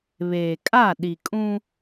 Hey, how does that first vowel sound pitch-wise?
low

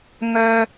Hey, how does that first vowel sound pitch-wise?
high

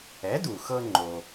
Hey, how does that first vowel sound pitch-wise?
rising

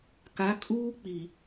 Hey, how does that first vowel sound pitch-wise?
rising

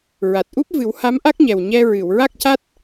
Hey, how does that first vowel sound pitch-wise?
low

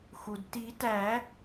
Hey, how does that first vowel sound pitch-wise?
low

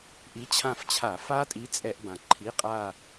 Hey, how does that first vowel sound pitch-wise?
rising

